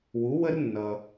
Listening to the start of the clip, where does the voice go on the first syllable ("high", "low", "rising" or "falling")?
rising